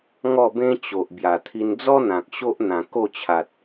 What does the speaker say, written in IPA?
ŋ ɔ˥˧ b ẽ˦ t͡ɕ o˨ ʔ b j a˨˩ t̪ʰ i˧ n d͡z ɔ˦ n̪ ã˨ k̚ ɕ o˦ ʔ n̪ ã˨˩ k o˥˧ t͡ɕʰ a˨ t̚

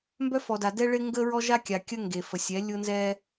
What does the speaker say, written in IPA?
m b œ˦ f ɔ˨ d a˨ d ɛ˦ ɭ ɪ˦ ŋ ɡ ə˦ ɹ ɔ˦ ʒ a˦ kʲ a˨ kʲ ə˦ ŋ ɡ e˨ f ə˨ sʲ ɛ˨˦ lʲ ʊ˦ n z ɛ˦

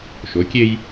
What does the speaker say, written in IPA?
ʃ o˨˦ kʲ e˦ j

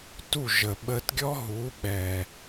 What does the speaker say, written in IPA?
t u˥˩ ʒ ə˩ ɓ ə˧ t ɡʲ ɔ˥ ɦ u˩˥ ɓ ɛ˩

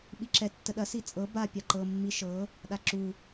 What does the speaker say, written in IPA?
ɓ i ǁ ɛ tː ə ɗ ɐ s i t͡sʼ ɤ b a pʲ a ǃ ɤ mː i ʃ ɤ | ɗ a ǁ u

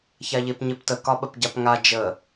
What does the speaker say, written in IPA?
ç a ʎ e p ɲ e p t ə k ɒ ɓ ə p ɟ a p ŋ a d͡ʒ ə

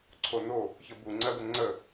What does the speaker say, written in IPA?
ǀʰ o n o | ç ə b u ŋ͡ǀ ɜ b ə ŋ͡ǀ ə

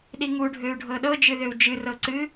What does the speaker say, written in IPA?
ɗ i ŋ u ɖʱ ø u̯ ɖʱ ɤ ɗ ɤ d͡ʒ ɨ ð ø u̯ d͡ʒ ɨ r ɤ ǀ ɨ

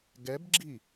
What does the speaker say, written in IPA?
ɡ ɛ b ɡ͡ǁ i

